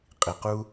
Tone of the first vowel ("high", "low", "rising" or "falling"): low